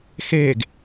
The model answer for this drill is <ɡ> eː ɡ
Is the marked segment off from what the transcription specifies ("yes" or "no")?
yes